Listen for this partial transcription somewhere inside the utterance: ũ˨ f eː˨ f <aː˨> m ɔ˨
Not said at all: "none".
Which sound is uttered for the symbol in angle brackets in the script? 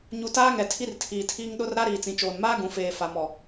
a˨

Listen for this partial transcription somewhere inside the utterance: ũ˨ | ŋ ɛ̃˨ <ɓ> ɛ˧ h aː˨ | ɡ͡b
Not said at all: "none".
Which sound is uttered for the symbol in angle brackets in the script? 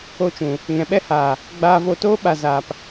ɓ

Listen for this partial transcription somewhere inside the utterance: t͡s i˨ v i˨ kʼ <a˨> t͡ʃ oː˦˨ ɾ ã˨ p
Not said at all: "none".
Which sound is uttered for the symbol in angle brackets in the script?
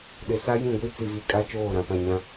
a˦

